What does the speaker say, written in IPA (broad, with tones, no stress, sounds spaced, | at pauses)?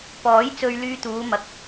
p ɔː˨˥ j t͡s ɵ˧ ɥ l yː˧ t̪ uː˨˧ m ɐ˨ k̚